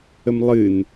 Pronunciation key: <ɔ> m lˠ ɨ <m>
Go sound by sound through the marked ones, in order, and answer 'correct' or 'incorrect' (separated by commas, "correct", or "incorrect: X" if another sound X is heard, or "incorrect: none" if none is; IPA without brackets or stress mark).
incorrect: ə, incorrect: n